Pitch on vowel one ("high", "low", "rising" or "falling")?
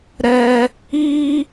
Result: high